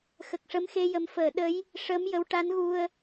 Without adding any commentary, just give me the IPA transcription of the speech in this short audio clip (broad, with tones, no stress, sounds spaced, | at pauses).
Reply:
x ə˨˩ k̚ ʂ ə˧˥ m x e˧ j ə˨˩˦ m f əː˨˩˨ ɗ ə˧˥ j | ʂ əː˧˥ m j ə˧˥ w ʈ a˧˥ n ɣ u˧ ə̯